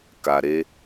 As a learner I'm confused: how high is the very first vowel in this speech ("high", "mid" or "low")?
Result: low